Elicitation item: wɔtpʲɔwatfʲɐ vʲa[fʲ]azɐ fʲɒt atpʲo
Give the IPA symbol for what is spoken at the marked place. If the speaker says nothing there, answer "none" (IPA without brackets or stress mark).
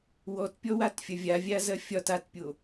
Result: vʲ